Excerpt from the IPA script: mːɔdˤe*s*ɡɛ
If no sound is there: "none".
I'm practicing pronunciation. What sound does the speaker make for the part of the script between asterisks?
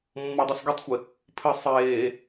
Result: s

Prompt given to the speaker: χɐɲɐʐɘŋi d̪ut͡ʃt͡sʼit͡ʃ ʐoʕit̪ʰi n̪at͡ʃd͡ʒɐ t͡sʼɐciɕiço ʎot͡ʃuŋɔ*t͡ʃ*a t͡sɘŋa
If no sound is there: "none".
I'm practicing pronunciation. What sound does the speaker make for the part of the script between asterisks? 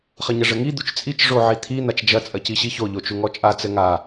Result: t͡ʃʼ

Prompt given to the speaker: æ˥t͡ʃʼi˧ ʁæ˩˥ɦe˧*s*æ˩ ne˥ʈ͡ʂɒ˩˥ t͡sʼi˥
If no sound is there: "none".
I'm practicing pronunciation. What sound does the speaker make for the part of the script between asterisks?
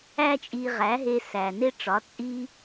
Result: s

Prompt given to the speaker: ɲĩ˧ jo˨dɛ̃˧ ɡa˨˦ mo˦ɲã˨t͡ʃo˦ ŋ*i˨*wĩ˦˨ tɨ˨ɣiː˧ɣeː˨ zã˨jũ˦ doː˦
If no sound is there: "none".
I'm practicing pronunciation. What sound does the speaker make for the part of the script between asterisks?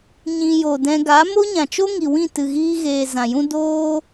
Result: i˨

